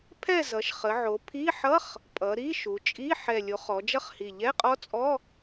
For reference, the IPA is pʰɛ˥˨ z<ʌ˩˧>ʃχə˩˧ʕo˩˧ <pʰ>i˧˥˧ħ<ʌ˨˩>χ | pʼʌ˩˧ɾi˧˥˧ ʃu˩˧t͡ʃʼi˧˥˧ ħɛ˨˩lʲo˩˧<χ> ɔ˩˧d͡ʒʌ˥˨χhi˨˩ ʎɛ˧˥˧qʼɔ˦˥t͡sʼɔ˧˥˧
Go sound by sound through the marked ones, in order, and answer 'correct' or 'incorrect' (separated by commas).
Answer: correct, correct, incorrect, correct